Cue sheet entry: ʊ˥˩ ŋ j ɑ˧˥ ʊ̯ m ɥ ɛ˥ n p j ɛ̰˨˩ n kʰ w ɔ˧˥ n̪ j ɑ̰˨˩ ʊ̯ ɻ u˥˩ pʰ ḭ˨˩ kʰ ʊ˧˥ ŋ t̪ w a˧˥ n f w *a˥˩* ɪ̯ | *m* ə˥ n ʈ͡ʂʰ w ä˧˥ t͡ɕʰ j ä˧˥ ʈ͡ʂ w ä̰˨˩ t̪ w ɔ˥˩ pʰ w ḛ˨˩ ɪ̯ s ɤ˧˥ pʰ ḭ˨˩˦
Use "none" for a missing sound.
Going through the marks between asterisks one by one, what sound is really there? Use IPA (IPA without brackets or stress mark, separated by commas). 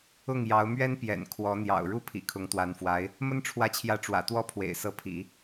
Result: a˧˥, m